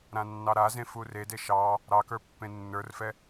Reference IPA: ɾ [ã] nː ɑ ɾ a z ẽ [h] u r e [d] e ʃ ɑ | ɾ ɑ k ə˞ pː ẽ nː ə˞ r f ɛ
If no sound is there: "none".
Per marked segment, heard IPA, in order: ã, f, d

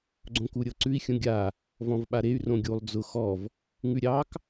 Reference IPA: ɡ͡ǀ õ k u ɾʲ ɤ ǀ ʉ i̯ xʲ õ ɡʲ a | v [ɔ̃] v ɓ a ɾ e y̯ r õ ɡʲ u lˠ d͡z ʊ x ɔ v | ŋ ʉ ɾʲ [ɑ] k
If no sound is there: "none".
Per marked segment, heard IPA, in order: ɔ̃, ɑ

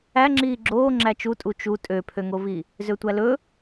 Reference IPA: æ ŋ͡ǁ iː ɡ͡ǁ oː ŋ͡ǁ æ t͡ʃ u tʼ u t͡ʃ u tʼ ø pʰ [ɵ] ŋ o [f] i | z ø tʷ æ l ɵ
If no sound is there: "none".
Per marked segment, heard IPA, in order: ø, v

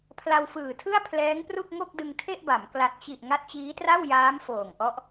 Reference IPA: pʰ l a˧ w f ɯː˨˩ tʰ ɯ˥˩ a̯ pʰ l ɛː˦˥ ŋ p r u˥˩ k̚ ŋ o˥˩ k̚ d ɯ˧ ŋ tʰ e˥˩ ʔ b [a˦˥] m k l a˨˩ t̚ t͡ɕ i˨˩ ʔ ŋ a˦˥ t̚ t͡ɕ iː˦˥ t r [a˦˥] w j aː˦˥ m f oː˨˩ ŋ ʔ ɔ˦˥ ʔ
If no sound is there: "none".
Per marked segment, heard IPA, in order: a˩˦, a˥˩

